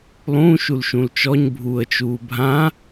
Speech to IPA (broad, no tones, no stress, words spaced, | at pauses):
lˠũ ʃulʃũlt͡ʃɔɲ bʱuːə̯t͡ʃuːbʱã